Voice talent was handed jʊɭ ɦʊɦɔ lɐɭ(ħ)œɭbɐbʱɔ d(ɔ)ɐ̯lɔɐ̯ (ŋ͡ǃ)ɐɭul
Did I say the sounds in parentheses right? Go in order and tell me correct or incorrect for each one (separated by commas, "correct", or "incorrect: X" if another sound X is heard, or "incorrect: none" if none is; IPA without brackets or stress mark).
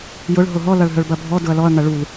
incorrect: ɦ, incorrect: ʊ, incorrect: ŋ